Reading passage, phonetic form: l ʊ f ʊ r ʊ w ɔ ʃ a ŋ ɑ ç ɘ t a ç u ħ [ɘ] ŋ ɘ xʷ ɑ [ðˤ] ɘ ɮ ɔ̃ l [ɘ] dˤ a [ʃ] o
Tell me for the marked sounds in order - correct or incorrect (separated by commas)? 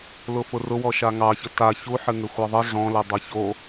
correct, correct, correct, incorrect